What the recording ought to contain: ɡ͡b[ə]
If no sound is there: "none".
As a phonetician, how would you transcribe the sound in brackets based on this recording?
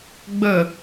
ə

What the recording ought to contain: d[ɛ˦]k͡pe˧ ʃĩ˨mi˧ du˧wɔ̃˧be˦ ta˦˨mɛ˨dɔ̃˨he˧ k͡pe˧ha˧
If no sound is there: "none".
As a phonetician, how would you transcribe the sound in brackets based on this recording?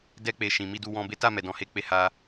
ɛ˦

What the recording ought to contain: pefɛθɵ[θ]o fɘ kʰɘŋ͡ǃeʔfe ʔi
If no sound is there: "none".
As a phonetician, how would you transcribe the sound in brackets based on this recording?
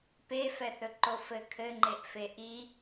ǃ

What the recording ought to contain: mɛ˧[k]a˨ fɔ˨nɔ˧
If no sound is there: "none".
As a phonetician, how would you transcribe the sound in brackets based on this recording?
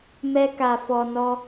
k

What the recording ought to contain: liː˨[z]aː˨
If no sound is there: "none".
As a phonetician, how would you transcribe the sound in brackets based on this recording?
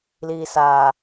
s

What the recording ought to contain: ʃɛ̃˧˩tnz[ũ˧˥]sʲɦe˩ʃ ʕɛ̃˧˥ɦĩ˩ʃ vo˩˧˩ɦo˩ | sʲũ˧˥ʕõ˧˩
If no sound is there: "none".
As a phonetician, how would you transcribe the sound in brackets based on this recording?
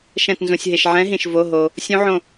ũ˩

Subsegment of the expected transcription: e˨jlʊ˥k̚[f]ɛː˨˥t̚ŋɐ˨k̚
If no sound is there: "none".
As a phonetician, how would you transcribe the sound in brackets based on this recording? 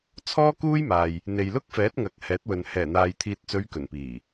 f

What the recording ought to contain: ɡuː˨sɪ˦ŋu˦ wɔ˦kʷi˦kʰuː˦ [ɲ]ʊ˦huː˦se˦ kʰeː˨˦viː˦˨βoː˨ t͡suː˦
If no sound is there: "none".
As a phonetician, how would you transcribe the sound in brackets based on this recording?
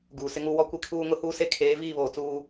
ŋ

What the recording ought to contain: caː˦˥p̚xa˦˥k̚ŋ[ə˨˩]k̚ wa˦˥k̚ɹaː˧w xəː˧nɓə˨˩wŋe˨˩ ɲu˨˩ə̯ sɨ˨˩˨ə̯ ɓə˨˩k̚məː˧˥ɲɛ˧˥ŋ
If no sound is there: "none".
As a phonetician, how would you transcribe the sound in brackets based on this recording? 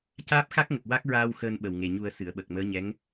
ə˨˩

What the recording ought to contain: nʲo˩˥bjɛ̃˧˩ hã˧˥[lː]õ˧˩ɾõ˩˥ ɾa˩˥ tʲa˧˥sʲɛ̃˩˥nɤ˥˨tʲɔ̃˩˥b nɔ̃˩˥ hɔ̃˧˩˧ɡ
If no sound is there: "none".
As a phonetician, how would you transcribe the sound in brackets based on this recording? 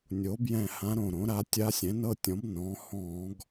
ɾ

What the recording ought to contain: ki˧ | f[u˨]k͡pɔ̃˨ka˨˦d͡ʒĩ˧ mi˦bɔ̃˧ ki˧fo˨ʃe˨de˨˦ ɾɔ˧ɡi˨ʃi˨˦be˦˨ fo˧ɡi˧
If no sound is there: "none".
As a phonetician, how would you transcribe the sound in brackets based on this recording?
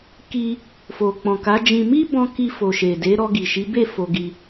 o˨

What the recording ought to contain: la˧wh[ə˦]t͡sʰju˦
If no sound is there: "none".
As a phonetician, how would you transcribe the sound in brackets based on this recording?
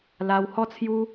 ɔ˦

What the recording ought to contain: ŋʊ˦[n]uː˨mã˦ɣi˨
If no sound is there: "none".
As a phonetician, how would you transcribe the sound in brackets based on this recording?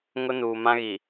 n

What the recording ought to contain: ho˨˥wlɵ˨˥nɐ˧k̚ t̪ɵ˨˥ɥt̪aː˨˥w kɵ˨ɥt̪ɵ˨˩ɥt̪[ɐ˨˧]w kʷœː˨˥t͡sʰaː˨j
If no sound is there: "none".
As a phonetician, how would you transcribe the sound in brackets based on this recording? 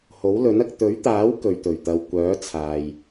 ɐ˨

